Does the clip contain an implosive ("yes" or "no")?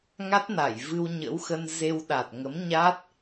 yes